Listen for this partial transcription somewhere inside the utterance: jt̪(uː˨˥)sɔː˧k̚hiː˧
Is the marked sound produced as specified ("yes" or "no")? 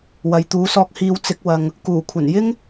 yes